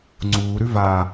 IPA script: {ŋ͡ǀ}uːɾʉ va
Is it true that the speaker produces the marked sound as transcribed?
yes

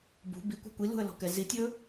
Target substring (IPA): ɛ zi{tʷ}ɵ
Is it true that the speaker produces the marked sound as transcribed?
no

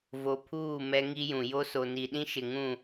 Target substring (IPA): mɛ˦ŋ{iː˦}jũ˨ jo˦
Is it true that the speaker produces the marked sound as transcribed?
no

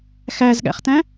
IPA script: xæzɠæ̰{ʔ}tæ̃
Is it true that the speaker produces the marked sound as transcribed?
no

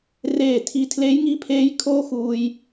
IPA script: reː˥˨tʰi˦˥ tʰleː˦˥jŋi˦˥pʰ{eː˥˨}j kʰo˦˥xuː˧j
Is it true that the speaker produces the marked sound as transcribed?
no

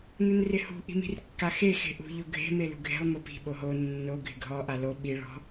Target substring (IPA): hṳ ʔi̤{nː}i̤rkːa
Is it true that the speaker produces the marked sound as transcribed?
no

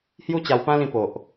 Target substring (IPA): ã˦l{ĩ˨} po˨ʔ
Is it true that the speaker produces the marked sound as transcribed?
no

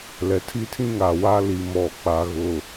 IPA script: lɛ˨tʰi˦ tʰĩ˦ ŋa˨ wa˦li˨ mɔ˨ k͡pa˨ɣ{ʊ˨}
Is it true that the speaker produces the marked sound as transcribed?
yes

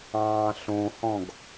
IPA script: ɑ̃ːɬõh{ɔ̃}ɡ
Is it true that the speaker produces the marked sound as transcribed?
yes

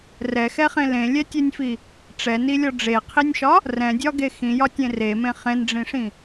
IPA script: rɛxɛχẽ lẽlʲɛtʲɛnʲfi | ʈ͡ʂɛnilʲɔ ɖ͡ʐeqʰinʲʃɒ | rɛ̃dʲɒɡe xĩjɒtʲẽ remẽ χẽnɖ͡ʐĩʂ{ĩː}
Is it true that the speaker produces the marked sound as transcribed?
no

